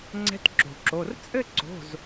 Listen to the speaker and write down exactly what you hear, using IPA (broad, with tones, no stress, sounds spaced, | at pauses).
ŋ͡ǀ ɛ̤˧˥ t ǁ o̤˩ ǁ o˩˧˩ r t͡sʼ ɘ˥˧ ǀ o̤˩˧˩ z